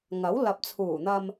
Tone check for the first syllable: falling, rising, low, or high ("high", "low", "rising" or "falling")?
rising